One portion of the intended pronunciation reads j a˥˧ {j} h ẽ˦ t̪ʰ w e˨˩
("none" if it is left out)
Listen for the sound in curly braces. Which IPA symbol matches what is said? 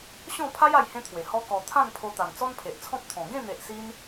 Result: j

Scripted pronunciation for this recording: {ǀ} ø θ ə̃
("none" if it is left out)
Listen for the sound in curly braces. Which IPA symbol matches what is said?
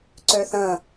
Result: ǀ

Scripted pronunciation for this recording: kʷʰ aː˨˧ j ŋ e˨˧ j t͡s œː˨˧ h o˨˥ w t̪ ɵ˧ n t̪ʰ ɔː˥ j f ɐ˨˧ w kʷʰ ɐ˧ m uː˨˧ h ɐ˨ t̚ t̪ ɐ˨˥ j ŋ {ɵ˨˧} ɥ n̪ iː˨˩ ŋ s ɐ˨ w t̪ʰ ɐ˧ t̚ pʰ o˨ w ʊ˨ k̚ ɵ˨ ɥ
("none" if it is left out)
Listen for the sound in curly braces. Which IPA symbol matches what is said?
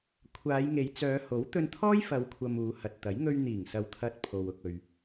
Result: ɵ˧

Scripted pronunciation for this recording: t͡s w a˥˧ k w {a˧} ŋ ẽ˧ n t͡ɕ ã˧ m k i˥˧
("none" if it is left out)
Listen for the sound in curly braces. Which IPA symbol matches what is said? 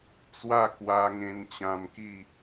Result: a˧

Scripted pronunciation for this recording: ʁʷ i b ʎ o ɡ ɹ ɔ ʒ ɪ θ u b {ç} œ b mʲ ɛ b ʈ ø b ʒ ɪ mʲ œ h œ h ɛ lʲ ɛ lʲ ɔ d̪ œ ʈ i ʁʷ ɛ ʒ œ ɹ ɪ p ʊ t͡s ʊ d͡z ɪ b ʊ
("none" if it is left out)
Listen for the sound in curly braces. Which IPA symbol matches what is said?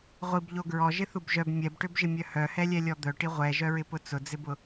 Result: ʒ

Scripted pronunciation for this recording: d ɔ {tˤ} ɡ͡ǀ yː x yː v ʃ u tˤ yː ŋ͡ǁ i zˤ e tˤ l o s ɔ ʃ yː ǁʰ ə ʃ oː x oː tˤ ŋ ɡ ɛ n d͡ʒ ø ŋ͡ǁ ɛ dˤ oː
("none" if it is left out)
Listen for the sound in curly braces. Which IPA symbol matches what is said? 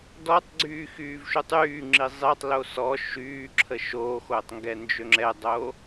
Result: tˤ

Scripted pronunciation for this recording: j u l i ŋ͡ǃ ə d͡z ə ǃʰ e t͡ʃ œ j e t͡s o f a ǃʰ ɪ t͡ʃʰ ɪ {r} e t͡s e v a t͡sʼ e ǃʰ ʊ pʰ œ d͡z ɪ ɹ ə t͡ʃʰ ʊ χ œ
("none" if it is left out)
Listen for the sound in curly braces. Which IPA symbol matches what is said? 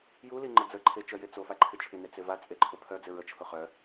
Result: n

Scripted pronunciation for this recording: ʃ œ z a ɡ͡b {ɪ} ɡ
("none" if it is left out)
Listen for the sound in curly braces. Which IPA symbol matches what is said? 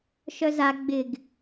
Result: ɪ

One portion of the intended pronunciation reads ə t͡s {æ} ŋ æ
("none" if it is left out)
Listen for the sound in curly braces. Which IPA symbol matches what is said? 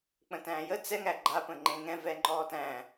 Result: ɛ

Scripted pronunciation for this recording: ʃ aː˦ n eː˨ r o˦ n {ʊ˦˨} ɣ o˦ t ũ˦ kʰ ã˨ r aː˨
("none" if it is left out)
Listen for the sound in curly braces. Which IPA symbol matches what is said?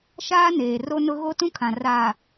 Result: ʊ˦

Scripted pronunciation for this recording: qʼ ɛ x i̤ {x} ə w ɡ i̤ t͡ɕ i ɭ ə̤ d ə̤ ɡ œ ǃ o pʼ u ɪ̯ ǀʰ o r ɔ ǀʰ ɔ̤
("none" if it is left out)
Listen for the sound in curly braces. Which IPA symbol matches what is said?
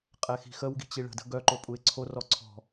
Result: x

